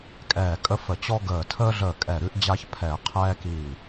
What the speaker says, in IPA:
kʼɛː˧˩kʼə˦fə˧˩ t͡ɕɔ˦ɡəː˧˩ tʰəː˦ɮəː˧˩ kʼɛ˧˩ɾʉ˦ʔ d͡ʑa˦çpʰɛ˧˩˧ qʰɛː˦kiː˧˩

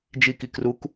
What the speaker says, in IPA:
d͡ʒiki kruk

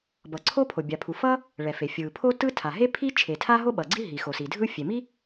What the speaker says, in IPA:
bʌ˩ǀʰo˥ pʰo˩bʲa˩pʰu˩ fʌ˥ | ɭɛ˩fe˩ fʲɯ˩pʰo˥tɯ˥tʰa˩ ɦe˥ pʰi˥ t͡ʃʰe˩tʰa˥ɦo˥ ɓʌ˩ɡ͡ǀi˥ ɦi˩xo˩si˩ dʱɯ˥fʲe˩ mi˥

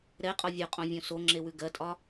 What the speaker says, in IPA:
ɾɛqʼɒ vʲoqʼõvʲõ soŋ͡ǁewʉ ɡɜtʼɒ

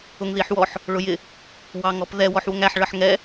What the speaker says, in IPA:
ʊŋðiħwɔħ | ɭʊjɪ | wɑŋɔpðɛ wɔħwʊŋæħ ɭʌħŋɛ

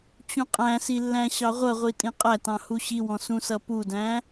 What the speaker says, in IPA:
t͡ɕũqʼæ̃si lːæ̃ɕɑʁʷʌʁʷi tʼĩqʼætɑ̃ huɕiwɔ̃ sũsʌpudæ̃

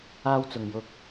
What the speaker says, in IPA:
aː˧wt͡sʊ˨ŋjʊ˧k̚

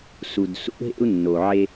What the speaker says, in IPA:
su˨dsṵ˦ɦḛ˦u̯ nːo˨ʕe˦

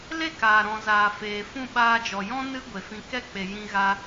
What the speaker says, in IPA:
le˦˨kaː˨ ɾɔ̃˨ zaː˨feː˨fũ˦˨ ɓaː˧d͡ʒɔ˨jɔ̃˦ nɨ˦ ɡʷe˨fĩ˧ kɛ˦˨k͡pe˨ jĩ˦ɣa˦

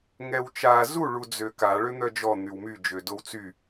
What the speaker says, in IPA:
ŋɛwt͡ʃa zu ɭud͡zøka ɭøn̪œd͡ʒɔ n̪ywmy d͡ʒødowt͡sy

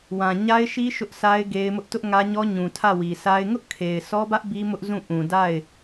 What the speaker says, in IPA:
wã˨ ɲa˦ɪ̯ʃi˦ ʃʊ˦ʔsʰa˦ɪ̯ ɡe˦ɪ̯mʊ˦ʔ tʊ˦ʔŋä˦ɲɔ˦ ɲũ˨tʰä˦˨wi˨sa˦ɪ̯ ŋʊ˦ʔkʰe˨ɪ̯ sʰɔ˦bä˦ʔ bi˦mʊ˦ʔ zũ˦˨ ʔũ˨ da˦˨ɪ̯

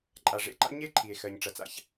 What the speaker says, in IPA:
ǃʼa˩ʐḛ˥ǃa̰˥ ɲe˥ǃʰi˩e̯ xɜ˩ɲʈ͡ʂɐ˩t͡sa̰˥ç

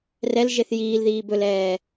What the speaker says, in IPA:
rɛl ʒeθjiːlðiː bɵlɛː

